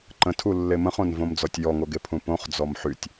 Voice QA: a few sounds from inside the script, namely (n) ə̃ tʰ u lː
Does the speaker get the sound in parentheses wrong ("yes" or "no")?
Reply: yes